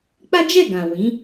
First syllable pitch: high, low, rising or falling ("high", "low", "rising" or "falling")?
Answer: high